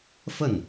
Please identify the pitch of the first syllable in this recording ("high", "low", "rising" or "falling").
falling